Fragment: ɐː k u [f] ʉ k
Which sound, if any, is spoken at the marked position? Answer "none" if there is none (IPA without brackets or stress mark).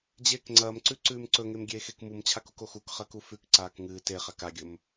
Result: f